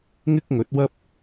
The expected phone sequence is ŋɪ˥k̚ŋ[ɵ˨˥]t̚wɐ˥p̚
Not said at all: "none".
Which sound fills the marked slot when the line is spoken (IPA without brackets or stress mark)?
ɵ˨˥